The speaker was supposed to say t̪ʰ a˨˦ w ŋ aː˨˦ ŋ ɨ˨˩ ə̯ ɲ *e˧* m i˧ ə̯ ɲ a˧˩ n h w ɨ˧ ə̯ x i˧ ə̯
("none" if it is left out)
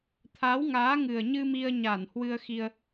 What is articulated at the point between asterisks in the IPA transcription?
ɨ˧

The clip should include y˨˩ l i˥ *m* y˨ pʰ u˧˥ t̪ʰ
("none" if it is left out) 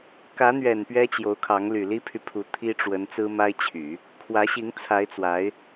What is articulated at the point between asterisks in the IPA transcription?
pʰ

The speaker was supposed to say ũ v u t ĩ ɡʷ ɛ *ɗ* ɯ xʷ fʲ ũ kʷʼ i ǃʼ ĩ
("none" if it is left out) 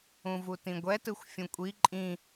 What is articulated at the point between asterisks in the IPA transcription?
t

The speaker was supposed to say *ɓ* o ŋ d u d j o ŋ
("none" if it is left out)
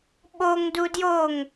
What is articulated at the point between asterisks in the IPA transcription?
ɓ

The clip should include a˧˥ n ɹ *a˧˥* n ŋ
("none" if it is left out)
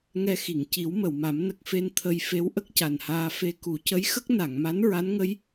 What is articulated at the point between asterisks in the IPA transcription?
a˧˥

